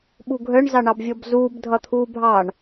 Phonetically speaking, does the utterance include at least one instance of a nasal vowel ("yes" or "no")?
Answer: no